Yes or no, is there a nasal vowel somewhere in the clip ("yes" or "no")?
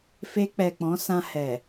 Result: yes